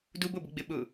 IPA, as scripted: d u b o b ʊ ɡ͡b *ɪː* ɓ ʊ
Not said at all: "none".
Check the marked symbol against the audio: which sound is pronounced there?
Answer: ɪ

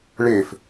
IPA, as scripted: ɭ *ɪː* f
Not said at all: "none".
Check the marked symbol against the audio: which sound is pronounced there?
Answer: ɪː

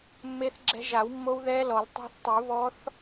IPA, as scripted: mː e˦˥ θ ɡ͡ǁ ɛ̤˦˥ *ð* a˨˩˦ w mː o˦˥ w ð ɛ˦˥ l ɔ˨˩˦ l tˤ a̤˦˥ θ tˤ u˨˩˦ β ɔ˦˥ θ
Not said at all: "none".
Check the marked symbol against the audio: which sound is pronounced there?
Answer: ʒ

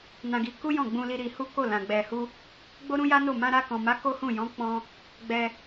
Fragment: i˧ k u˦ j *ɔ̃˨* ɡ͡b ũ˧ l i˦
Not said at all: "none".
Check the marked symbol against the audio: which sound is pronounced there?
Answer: ɔ̃˦˨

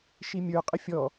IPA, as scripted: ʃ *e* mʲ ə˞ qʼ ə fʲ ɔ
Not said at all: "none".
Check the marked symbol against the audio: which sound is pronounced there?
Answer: i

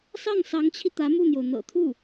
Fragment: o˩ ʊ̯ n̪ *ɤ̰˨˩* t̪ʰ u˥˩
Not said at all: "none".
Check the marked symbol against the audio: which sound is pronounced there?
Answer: ɤ̰˨˩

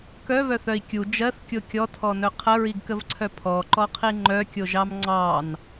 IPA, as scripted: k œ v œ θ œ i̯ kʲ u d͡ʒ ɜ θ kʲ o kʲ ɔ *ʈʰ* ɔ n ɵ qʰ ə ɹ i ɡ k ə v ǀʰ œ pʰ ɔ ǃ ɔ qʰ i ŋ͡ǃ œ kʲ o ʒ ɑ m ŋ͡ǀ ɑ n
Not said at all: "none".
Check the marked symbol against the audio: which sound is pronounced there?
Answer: tʰ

